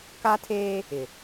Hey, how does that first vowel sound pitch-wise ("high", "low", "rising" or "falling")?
high